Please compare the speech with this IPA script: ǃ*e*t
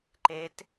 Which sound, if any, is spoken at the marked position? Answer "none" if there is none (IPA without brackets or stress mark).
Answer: e